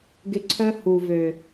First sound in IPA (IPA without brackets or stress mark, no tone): ɡ